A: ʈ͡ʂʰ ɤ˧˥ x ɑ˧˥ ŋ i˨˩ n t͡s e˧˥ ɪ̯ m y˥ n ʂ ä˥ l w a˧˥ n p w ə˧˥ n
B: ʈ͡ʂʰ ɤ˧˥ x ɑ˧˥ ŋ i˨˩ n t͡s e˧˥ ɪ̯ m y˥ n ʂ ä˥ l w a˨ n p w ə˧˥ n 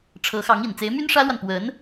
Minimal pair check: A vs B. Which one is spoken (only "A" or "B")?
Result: B